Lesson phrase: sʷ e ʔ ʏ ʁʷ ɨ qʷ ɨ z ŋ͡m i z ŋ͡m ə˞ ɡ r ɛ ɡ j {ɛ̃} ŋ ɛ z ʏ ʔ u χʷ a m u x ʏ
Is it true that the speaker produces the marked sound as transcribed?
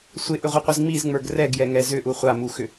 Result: no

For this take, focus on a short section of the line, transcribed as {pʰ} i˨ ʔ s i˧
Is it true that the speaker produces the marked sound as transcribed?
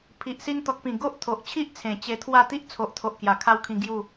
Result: yes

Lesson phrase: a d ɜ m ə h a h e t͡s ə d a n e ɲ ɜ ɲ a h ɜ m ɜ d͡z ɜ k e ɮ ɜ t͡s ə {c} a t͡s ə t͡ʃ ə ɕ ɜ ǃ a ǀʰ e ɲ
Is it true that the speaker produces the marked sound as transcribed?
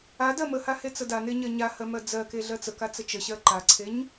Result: no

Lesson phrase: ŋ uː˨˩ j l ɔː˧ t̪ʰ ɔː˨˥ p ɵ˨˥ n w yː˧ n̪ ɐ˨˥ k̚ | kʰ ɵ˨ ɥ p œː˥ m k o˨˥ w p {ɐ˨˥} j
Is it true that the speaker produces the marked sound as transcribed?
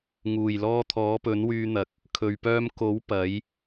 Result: yes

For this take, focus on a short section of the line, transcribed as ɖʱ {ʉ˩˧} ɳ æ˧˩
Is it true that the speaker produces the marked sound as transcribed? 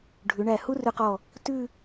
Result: yes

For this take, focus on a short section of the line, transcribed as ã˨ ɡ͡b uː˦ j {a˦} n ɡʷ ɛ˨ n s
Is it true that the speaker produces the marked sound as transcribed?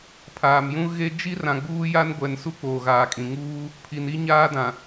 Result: yes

